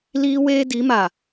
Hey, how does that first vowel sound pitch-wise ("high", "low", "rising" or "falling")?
high